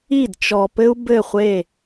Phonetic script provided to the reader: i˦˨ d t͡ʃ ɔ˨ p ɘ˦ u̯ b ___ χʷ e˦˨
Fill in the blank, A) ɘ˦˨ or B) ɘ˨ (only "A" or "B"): A